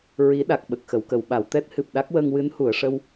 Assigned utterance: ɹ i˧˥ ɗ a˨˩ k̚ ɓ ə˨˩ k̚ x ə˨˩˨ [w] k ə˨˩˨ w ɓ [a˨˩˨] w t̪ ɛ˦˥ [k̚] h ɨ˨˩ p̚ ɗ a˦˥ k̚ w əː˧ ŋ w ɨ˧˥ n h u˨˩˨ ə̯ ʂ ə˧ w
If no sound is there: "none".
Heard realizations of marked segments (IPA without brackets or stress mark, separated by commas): w, a˨˩˨, t̚